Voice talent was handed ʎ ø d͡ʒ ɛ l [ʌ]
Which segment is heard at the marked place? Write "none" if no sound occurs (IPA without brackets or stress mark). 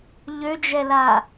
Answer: a